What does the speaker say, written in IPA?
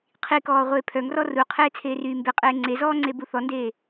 qʰikɔː ʁʷeːpʰœŋrɔ ruqʰeː t͡sʰeːryːmbeqʼeː ŋ͡ǀezɔː ŋ͡ǀebuθɔndeː

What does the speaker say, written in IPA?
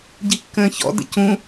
ɟikːə̃ːçɔ̰ də̰cũ

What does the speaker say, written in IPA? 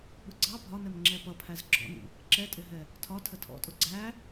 ɓʊɡ͡ǀɑ bʱɒnɛmŋ͡ǁɛ pʌpʰæz ɡ͡ǁɔ̰nḭ | ǁɛtʼɪɦɛ | tʰɒtʰə tʰɔ̰tʼʊ ɡ͡ǀæ

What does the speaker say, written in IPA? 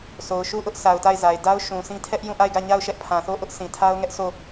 so˨ʊ̯ʃu˦˨ʔʊ˦ʔ sa˨ʊ̯ta˦˨ɪ̯za˨ɪ̯ da˦ʊ̯ ʃũ˨sĩ˦ tʰɛ˦ʔ jũ˦˨ʔa˦˨ɪ̯ɡä˦˨ɲa˦˨ʊ̯ ʃɛ˦ʔpʰã˨θo˦ ʔʊ˦ʔ sʰĩ˨tʰa˦ʊ̯ŋɛ˦ʔsʰo˦˨

